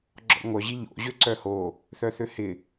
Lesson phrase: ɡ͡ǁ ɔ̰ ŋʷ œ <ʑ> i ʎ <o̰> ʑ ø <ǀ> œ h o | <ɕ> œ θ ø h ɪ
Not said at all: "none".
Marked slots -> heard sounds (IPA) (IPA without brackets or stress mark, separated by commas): ʑ, o̰, ǀ, θ